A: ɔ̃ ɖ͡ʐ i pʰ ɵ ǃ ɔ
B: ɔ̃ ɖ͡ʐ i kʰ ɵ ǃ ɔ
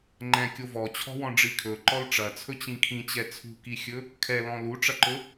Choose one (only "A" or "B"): B